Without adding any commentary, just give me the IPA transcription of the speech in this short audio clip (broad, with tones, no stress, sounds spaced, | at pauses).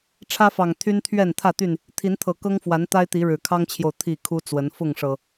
ʈ͡ʂʰ ä˦ f ɑ˨˩ ŋ t̪ʰ y˦ n t̪ʰ ɥ ɛ˥˨ n t̪ʰ ä˥˨ t̪ y˥˨ n | t̪ʰ i˨˦ n t̪ʰ ɤ˨˩ k ɤ˦ ŋ f w a˨˦ n t̪ a˦ ɪ̯ t̪ i˨˦ ɻ ɻ̩˨˩ kʰ ɑ˦ ŋ t͡ɕʰ j o˨ ʊ̯ t̪ʰ i˥˨ kʰ u˦ t͡s w ə˨˦ n f ʊ˥˨ ŋ ʂ ɤ˨˩